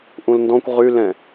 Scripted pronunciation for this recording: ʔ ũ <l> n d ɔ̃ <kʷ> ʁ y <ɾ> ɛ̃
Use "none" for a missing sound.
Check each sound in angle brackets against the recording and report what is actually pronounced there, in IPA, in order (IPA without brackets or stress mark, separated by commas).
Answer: l, kʷ, l